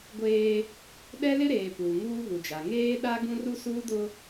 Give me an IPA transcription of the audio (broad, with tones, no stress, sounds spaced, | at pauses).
ɡʷ eː˦ | ɗ ɛ˦ l ɪ˦ ɾ eː˨ p uː˨ ŋ uː˦ β u˨ d͡ʒ a˨ ŋ eː˦ ɗ a˦ ɡ ũ˦ r u˦ s uː˦ d ʊ˦